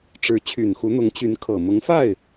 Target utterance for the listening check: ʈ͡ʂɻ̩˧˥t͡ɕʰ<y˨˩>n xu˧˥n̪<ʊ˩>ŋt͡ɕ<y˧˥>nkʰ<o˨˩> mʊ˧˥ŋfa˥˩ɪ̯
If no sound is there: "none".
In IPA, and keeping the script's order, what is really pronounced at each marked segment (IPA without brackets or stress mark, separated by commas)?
y˨˩, ʊ˧˥, y˧˥, ɤ˨˩